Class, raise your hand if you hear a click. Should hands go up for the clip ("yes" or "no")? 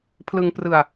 no